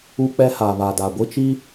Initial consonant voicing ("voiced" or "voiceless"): voiceless